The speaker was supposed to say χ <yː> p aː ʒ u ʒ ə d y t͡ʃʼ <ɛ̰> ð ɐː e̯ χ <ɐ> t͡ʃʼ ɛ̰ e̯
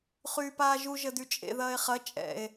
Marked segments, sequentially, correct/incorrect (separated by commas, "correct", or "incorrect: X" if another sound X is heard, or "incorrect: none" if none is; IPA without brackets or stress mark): correct, incorrect: ḛ, correct